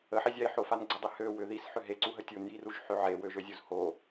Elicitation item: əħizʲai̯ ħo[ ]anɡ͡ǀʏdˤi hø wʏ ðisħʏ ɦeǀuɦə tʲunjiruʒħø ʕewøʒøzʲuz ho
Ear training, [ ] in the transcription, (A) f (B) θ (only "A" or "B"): A